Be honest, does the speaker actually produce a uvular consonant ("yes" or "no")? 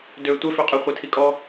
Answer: yes